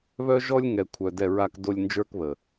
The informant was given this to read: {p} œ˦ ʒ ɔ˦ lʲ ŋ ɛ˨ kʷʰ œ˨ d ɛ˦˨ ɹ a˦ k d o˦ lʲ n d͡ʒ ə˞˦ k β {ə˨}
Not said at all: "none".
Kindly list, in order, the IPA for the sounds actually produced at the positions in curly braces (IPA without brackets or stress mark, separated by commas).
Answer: β, ə˨